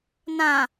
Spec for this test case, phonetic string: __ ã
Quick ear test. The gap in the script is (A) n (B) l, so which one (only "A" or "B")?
A